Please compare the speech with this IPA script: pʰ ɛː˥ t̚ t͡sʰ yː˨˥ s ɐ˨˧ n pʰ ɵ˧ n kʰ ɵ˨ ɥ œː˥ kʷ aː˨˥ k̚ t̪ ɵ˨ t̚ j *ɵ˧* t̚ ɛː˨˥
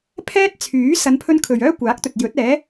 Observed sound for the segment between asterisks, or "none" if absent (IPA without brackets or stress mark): ɵ˨˥